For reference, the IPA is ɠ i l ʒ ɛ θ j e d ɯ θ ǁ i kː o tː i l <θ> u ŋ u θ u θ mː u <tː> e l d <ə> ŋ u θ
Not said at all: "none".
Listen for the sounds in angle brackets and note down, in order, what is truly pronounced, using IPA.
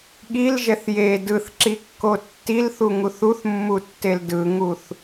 θ, tː, ɯ

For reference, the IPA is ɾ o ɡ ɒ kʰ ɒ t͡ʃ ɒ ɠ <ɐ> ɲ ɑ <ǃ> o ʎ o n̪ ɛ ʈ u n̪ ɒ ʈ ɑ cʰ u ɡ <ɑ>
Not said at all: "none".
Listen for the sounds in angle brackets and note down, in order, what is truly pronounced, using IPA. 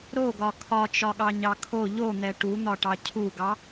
ɑ, kʰ, ɑ

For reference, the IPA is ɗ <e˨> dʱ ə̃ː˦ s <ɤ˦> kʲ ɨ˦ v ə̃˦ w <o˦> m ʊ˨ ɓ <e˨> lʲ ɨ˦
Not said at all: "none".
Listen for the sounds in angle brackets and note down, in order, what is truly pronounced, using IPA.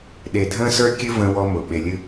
e˨, ə˞˦, ɔ˦, e˨

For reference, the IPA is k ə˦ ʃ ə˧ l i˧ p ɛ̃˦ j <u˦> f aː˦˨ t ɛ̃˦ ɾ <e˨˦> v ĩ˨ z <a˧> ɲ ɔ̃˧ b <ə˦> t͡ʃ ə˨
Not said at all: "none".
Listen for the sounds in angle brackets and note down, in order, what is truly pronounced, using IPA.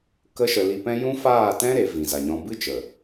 ũ˦, e˨˦, a˨, ɨ˦

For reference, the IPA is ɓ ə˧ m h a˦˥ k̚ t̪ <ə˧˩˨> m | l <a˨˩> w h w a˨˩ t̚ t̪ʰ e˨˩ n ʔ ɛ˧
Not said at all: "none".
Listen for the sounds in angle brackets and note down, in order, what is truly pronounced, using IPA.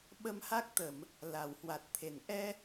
ə˧˩˨, a˨˩

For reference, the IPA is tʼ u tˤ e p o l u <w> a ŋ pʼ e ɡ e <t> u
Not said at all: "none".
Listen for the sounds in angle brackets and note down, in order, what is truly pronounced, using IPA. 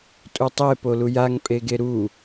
j, ɾ

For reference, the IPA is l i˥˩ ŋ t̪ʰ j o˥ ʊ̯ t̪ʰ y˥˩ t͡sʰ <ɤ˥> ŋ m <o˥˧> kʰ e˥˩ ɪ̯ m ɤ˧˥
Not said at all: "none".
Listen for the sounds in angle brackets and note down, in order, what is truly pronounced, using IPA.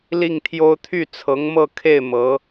ɤ˧˥, ɤ˥˧

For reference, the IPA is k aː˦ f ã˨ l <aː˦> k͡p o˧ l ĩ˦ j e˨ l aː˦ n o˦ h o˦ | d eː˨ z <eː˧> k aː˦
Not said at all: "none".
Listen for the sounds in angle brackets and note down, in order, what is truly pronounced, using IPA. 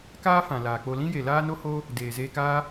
aː˨, eː˧

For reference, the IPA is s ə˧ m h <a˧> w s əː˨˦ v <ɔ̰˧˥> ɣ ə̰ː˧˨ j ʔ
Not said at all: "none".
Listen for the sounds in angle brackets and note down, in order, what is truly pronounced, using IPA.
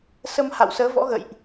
a̰˧˨, ɔ̰˧˥

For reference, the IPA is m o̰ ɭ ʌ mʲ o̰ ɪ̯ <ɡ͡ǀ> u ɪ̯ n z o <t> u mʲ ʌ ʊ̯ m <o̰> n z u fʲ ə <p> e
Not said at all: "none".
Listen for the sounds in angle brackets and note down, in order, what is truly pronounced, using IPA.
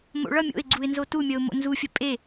ɡ͡ǀ, t, o̰, pʼ

